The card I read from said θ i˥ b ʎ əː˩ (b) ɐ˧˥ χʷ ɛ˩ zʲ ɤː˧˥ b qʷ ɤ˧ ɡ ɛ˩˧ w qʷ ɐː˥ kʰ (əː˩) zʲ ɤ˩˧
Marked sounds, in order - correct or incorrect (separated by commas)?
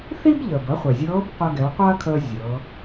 correct, incorrect